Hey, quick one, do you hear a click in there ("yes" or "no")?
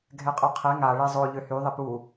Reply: no